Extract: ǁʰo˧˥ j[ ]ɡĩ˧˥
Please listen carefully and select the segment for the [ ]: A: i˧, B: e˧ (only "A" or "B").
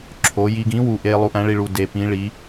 A